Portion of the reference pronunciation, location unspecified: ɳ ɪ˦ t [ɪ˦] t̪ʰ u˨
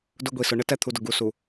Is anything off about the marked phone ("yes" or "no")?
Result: yes